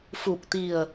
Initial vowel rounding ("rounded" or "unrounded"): rounded